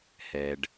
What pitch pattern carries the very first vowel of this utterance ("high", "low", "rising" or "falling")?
low